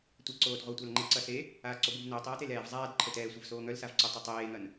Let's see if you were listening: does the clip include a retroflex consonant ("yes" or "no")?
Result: no